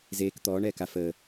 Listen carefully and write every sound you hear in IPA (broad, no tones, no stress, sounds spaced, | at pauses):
z eː k t̪ ɔː ɳ ɛː k a f əː